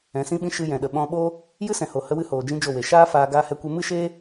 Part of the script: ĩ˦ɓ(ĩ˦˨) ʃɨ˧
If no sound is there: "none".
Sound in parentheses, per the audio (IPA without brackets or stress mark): ĩ˦